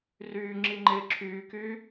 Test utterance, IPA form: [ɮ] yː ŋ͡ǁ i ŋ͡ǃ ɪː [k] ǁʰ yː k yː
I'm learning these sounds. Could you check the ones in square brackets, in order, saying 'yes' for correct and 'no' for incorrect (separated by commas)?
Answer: no, no